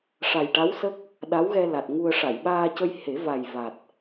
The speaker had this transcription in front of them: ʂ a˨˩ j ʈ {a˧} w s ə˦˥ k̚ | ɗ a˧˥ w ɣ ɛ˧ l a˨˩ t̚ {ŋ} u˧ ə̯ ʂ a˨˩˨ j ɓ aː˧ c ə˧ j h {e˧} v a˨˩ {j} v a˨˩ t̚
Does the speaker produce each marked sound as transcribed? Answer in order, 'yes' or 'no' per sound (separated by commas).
no, yes, no, yes